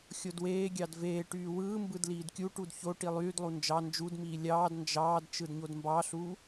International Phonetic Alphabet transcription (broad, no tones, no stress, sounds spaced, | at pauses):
xʲ o d w eː ɡʲ ɑ d v eː ʈ yː w ɯː m b ɯ d l iː d kʲ u ʈ u d ç o ʈ i lˠ yː d lˠ u n d͡ʒ ɑ n d͡ʒ u d m iː lʲ ɑː d n d͡ʒ ɑː d t͡ʃ ɯ d ɲ o d m b ɑ ɬ uː